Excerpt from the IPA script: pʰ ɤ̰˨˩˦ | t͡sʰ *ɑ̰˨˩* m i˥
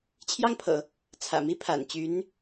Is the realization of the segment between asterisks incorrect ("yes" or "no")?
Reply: yes